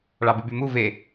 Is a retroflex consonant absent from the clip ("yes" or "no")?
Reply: no